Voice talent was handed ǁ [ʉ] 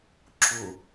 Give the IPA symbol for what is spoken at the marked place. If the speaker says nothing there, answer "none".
ʊ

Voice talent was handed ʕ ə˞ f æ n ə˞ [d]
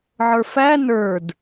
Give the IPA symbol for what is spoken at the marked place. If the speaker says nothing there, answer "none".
d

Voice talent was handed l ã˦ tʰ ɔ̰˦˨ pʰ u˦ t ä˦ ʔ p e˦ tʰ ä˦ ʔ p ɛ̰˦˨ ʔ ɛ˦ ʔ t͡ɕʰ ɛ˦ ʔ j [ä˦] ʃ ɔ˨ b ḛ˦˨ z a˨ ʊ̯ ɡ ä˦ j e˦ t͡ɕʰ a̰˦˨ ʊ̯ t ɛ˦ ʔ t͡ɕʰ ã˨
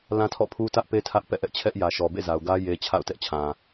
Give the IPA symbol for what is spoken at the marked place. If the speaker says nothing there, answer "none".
ä˨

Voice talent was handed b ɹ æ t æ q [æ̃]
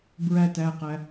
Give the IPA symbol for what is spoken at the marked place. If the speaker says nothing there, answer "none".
æ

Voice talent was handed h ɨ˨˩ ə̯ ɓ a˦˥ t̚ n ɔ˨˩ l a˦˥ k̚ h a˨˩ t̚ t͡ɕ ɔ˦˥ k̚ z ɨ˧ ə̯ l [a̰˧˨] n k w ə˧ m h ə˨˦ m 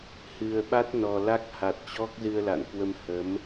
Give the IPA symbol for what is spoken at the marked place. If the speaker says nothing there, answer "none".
a̰˧˨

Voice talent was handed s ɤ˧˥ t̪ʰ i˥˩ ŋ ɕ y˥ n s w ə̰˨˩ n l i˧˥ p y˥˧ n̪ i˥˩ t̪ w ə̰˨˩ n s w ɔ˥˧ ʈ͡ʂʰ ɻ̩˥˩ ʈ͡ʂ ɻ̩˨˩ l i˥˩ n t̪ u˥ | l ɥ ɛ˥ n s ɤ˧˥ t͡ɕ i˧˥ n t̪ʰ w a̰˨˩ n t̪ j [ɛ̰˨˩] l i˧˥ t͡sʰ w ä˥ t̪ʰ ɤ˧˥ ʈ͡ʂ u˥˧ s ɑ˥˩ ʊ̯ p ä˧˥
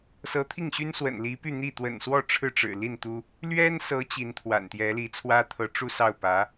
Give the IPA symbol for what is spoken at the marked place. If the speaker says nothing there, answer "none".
ɛ˧˥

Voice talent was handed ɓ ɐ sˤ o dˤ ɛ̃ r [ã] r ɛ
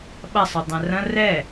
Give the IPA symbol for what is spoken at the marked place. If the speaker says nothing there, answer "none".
ɐ̃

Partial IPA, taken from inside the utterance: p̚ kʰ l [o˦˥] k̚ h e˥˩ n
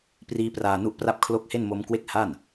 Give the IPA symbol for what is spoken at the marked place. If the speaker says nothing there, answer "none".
o˦˥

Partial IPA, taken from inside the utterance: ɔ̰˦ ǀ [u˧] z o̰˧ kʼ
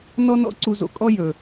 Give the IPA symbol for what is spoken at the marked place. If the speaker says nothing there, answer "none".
u˧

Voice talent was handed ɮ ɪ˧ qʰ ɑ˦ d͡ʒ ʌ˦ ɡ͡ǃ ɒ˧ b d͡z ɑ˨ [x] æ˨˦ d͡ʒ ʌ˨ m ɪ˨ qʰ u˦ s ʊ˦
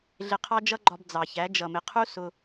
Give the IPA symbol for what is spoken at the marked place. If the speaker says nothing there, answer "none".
ç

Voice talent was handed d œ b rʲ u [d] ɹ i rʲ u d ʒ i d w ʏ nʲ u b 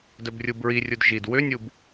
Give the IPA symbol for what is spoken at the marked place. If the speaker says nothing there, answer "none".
b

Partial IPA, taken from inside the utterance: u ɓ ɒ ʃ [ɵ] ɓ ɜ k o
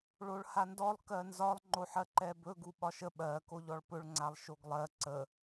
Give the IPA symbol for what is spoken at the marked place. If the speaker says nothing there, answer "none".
ə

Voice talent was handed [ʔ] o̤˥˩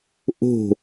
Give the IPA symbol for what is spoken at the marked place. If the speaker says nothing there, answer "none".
ʔ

